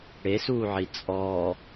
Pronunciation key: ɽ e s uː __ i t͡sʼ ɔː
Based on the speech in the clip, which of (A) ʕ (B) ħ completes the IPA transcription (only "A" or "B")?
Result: A